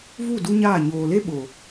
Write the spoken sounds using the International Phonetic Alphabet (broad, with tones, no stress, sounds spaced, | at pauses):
v u˦˨ d u˦ ɲ aː˦˨ ɲ oː˨ l e˦ ɓ o˨